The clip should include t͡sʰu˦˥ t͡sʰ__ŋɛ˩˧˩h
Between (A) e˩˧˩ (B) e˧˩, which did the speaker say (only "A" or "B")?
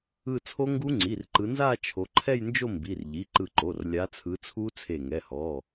B